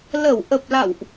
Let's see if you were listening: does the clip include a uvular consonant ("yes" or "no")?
no